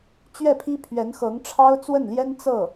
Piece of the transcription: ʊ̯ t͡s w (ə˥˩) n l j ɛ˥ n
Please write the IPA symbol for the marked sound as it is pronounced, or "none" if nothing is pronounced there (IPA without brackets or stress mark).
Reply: ə˥˩